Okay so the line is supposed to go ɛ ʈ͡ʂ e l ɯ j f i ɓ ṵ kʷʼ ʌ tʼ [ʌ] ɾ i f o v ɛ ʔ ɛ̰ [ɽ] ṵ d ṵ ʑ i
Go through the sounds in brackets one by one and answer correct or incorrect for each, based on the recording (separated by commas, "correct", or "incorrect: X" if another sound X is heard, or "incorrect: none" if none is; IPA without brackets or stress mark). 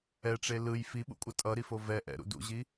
correct, incorrect: ɾ